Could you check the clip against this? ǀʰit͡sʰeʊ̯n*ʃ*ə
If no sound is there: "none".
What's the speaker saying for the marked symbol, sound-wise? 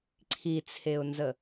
z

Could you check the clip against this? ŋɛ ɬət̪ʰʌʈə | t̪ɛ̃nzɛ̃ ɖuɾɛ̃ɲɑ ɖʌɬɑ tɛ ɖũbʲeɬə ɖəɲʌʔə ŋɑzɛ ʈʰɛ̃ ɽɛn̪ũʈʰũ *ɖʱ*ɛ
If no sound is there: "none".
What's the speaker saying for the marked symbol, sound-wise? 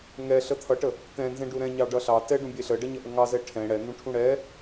ɽ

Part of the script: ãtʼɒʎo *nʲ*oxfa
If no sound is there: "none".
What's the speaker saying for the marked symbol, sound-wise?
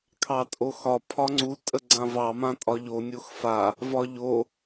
nʲ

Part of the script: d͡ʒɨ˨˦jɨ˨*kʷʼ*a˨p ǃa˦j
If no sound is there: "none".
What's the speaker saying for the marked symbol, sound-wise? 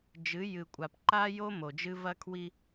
kʷʼ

